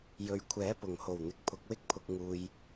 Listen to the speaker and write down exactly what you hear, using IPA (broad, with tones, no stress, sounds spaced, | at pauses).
j ɵ˨ ɥ kʷʰ ɛː˨˥ p ʊ˨˩ ŋ h o˨˩ w n̪ ɪ˨ k̚ pʰ ʊ˨˥ k̚ w ɪ˥ k̚ pʰ ʊ˧ k̚ ŋ uː˨ j